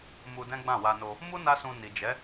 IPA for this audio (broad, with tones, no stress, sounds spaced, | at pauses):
m u˧ d ɛ̃˦ ɡ͡b ã˦˨ w a˧ n o˧ | m u˦ n a˦ s ũ˧ n i˨ d͡ʒ ɛ˨˦